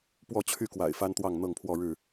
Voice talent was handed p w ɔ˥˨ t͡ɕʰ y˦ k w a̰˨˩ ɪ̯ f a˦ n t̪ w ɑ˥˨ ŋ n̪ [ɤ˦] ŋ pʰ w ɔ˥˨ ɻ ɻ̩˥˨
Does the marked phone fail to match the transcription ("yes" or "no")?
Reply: yes